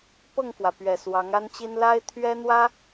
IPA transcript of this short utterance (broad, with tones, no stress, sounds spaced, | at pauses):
p ɤ˥˩ ŋ f w ä˩ p ɥ ɛ˨˩ s w ɑ˧˥ ŋ a˥ n t͡ɕ i˥ n l a˥ ɪ̯ t̪ʰ ɥ ɛ˥ n̪ w ä˥